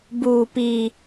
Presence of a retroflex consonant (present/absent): absent